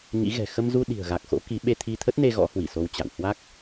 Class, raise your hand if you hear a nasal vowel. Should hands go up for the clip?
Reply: no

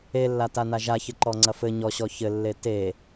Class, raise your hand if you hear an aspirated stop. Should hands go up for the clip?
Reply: no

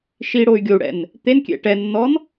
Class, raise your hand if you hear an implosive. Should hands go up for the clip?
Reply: no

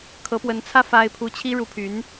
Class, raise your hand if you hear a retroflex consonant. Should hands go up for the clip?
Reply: yes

